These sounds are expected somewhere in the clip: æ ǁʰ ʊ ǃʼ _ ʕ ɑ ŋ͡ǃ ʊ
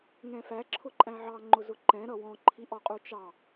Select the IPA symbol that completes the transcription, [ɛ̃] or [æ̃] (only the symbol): æ̃